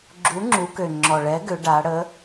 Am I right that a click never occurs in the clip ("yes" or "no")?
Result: no